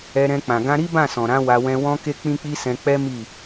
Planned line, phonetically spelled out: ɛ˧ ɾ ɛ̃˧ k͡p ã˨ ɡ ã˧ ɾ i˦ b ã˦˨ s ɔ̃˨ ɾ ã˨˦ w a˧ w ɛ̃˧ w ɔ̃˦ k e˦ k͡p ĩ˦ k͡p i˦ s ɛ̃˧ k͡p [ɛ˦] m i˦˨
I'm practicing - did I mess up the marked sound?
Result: no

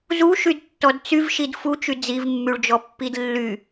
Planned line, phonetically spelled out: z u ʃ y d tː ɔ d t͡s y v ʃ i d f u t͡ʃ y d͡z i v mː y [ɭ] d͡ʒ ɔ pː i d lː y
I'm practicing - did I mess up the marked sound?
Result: no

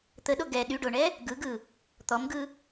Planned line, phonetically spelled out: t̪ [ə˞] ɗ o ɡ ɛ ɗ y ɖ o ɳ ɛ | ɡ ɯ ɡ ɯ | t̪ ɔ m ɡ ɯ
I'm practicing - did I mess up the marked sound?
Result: yes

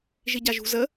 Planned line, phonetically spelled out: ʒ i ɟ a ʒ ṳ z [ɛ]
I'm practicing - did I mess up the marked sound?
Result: yes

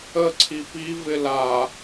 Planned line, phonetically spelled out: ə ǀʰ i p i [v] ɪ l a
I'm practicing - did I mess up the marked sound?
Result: no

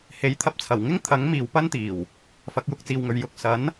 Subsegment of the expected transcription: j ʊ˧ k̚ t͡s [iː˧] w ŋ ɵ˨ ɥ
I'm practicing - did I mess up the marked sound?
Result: yes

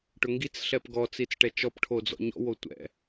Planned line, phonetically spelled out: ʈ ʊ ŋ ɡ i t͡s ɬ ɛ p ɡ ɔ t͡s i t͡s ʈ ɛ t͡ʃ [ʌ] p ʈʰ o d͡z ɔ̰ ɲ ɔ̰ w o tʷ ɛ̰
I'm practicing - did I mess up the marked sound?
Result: yes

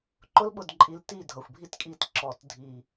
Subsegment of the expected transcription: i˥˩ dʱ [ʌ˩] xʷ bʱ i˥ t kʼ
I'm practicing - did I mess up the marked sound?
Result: no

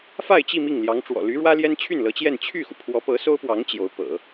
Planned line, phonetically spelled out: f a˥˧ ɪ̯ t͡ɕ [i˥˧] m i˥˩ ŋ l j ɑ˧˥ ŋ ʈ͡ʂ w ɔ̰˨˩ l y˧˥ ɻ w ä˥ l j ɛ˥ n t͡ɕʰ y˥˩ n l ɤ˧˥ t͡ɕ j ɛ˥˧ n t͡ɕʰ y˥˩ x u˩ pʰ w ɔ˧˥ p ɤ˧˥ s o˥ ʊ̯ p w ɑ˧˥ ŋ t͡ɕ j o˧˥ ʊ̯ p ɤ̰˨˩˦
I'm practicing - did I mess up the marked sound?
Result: no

